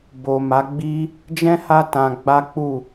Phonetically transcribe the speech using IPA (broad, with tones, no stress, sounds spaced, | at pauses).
b o˨ m a˨˦ ɡ͡b i˦ | d͡ʒ ɛ̃˦ h a˦ t ã˧ ɡ͡b a˦ k͡p u˦˨